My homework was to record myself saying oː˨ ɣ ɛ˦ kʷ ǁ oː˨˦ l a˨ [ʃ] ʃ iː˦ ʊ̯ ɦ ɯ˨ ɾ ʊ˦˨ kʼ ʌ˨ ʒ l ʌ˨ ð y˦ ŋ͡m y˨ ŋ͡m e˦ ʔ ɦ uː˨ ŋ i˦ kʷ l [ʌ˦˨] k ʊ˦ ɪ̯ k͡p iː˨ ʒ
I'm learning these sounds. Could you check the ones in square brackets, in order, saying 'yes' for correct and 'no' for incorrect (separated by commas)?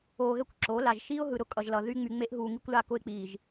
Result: no, no